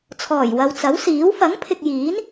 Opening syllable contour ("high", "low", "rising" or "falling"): low